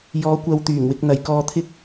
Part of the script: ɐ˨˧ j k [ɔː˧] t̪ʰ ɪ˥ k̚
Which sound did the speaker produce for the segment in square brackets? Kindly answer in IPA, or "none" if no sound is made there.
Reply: ɔː˧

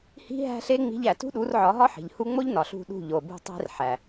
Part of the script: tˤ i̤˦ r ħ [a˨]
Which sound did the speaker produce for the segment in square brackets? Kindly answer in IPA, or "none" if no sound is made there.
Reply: æ˨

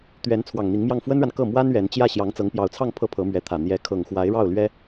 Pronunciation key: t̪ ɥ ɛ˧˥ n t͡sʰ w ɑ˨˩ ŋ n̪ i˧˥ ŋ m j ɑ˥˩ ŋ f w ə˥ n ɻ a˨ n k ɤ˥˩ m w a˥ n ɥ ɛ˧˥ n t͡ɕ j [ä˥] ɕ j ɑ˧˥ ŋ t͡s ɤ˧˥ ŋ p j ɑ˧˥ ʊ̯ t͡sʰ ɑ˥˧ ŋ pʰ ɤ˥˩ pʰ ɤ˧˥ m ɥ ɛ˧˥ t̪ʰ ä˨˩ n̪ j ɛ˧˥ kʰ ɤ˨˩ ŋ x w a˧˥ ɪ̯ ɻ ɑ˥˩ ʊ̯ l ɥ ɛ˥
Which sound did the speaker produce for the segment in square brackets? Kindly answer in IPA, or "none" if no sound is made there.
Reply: ä˥˩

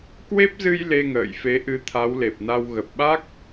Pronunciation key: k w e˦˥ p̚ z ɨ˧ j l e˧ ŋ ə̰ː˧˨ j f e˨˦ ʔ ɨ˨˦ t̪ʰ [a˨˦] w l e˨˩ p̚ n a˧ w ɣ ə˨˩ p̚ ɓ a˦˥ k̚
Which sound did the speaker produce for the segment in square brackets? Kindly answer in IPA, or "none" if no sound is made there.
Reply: a˨˦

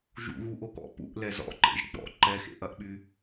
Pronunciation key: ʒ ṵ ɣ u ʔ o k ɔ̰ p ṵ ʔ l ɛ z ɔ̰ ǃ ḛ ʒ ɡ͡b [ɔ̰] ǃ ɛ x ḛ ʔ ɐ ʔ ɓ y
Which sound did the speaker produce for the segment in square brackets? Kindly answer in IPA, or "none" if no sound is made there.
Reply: ɔ̰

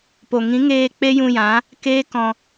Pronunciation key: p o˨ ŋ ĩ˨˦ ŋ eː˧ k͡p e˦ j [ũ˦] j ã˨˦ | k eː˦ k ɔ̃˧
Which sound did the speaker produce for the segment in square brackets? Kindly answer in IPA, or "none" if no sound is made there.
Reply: ũ˧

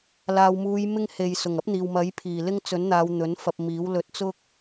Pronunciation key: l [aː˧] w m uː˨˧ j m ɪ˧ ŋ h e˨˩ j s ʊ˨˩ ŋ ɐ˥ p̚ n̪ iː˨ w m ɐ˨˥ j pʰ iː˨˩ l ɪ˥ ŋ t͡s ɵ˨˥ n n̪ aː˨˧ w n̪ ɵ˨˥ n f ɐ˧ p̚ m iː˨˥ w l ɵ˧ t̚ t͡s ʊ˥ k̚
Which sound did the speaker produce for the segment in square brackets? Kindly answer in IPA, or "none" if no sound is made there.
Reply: aː˨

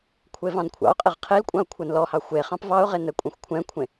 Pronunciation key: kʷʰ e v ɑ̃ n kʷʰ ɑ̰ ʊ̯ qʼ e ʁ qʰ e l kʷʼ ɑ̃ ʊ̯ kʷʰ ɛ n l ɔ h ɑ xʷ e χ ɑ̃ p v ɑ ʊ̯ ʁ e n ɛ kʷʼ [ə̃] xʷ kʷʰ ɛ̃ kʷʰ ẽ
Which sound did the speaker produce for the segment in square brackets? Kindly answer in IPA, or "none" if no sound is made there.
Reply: ɛ̃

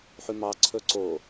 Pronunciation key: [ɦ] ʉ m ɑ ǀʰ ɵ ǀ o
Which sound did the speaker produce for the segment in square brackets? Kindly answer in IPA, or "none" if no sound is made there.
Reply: ħ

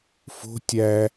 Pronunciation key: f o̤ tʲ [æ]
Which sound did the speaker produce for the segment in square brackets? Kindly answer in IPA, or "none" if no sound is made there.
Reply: æ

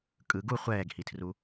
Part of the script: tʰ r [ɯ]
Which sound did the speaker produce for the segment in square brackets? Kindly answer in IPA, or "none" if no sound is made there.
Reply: u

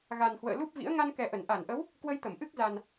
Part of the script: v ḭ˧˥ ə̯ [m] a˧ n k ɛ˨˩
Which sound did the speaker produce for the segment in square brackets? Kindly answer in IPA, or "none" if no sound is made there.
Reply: ŋ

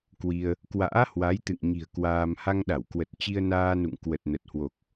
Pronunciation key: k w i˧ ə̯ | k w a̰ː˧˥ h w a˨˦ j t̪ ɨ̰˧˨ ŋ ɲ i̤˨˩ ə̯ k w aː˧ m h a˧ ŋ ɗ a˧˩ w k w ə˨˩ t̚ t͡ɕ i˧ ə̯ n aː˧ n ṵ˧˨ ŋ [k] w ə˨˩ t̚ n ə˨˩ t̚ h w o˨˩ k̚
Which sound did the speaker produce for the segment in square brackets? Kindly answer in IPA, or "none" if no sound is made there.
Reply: k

